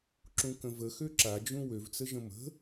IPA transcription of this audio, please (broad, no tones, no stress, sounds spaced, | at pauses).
ǁ ũ k ə̃ v ə x ø ǁ a d͡ʒ ũ w ø v t͡s ə ʒ ə̃ m ə̤